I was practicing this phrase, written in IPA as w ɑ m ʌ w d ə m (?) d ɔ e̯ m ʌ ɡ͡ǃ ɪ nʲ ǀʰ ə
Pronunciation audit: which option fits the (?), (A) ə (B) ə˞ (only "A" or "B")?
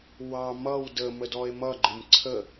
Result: A